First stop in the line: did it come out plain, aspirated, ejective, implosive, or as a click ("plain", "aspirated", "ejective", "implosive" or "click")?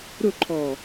click